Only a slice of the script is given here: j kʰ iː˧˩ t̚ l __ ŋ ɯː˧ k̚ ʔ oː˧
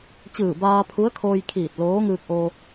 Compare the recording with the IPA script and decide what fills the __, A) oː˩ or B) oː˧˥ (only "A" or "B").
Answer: B